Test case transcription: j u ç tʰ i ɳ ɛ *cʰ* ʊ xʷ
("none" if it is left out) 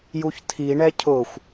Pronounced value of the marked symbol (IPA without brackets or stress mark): cʰ